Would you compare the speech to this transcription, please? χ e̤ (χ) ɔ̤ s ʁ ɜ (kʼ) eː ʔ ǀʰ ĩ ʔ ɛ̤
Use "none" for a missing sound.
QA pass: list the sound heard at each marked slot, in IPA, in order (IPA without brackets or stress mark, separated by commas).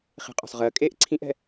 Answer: qʼ, kʼ